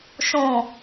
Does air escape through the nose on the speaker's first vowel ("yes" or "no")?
yes